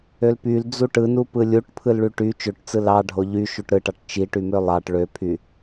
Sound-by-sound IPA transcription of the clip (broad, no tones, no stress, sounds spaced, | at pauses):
ø l p y l d͡z u ʈ ɯ n u p ɯ lʲ u ʈ pʰ ɯ l ɭ y ʈ y t͡ʃ ø ʈ t͡s ɯ l ɑ ɖʱ o ʎ y ʃ u ʈ ɾ ɯ ʈ ɑ ʈ t͡ʃ i ʈ y m ø lˠ ɑ ʈ ɭ ø pʰ y